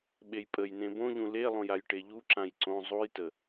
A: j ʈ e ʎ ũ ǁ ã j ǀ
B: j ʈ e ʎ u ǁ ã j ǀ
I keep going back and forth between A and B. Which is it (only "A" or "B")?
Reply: B